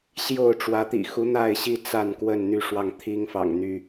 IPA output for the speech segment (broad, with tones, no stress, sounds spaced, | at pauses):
ɕ j o˥˨ ʊ̯ ʈ͡ʂ w ä˨˦ t̪ ḭ˨˩ x u˨˦ n̪ a˥˨ ɪ̯ ɕ i˥˨ t͡s a˥˨ n k w ə˥˨ n n̪ y˥˨ ʂ w ɑ˥˨ ŋ t̪ʰ i˦ ŋ f ɑ̰˨˩ ŋ n̪ y˥˨